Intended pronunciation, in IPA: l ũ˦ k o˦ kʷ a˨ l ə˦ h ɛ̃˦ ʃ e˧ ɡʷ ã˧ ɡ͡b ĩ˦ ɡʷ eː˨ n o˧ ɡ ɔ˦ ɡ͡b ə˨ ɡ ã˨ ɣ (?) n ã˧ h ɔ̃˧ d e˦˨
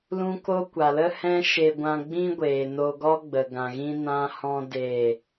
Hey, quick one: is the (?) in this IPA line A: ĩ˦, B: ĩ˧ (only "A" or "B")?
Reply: A